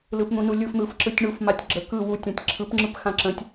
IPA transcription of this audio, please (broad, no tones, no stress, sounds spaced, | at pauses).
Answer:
l ɯ p n̪ ũ n u lʲ ɯ f n̪ ɯ f ǁ ɯ tʲ ɳ u f m a tʲ ɡ͡ǁ ə k ɯ w u tʲ ã tʲ ǁʰ ɯ p ŋ͡ǁ ɯ p x ã ǁ ə̃ tʲ